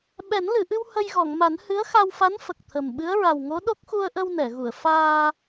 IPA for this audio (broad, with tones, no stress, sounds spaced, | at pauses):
ɓ ɛ˨˩˦ n l ɨ˨˩˨ ʔ ɨ˧ w h ə˧ j ɣ ɔ˨˩˨ ŋ m a˨˩˦ n h ɨ˧˥ ə̯ x a˧ w f a˧˥ n f ə˨˩ k̚ t̪ʰ ə˨˩ m ɓ ɨ˧˥ ə̯ ɹ a˨˩ w ŋ o˧˥ ɗ o˦˥ k̚ x u˧ ə̯ ʔ ə˧ w n ɛ˨˩˨ ɣ u˨˩˨ ə̯ f aː˧